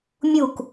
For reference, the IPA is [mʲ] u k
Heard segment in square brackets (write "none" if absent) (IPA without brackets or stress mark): mʲ